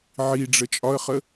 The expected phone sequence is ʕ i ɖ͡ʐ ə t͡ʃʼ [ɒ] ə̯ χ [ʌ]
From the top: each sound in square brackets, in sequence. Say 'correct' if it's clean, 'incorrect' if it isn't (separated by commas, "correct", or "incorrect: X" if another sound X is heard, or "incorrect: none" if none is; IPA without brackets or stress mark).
correct, incorrect: ə